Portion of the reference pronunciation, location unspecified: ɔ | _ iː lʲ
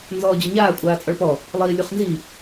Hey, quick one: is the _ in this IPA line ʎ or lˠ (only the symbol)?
lˠ